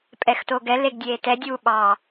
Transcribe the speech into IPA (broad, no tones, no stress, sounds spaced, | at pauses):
pʼ ɛ x t o ɡ ɛ l e ɡ dʲ eː t ɛ dʲ uː ɓ ɑ